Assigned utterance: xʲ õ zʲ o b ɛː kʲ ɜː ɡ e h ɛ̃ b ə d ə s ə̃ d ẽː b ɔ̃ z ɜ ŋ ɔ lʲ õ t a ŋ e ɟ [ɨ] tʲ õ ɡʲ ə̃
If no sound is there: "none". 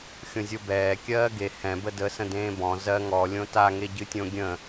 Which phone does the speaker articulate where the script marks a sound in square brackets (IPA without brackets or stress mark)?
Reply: ɨ